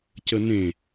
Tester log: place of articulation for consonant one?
palatal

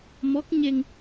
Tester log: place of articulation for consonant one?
labial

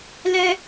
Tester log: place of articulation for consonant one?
alveolar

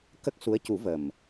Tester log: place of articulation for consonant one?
velar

